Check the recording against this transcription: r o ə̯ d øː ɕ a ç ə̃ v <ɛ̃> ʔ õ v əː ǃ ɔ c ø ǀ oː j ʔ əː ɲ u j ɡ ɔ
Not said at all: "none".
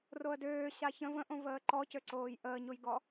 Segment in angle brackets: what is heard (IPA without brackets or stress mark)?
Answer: ə̃